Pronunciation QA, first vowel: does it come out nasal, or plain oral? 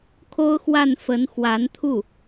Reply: oral